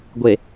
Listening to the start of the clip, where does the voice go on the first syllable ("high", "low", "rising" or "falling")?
low